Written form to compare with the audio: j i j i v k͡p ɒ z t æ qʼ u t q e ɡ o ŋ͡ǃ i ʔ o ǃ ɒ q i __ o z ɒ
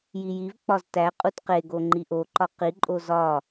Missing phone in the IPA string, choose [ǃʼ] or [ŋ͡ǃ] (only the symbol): ǃʼ